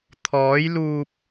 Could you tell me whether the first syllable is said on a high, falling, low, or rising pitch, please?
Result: rising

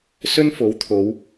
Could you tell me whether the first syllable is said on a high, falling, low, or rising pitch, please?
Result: high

